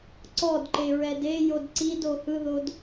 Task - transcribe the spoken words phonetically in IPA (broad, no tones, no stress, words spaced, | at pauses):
ǀɔdǃeɹɛd ejod ǀido hɯðod